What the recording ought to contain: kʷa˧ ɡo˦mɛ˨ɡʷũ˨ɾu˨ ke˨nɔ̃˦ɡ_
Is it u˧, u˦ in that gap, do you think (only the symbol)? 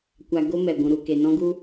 u˦